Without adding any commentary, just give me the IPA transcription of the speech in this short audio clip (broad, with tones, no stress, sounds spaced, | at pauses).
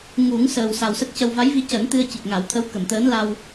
ŋ u˨˩˦ ŋ s əː˨˩ w s a˨˩ w s ə˦˥ k̚ c ə˧ w v a˧˥ j v i˧ c əː˨˩˦ n t̪ ɨ˧ ə̯ c i˨˩ k̚ ŋ a˨˩˦ w t̪ʰ ə˧˥ w k ə˨˩˨ m t̪ əː˧˥ n l a˧ w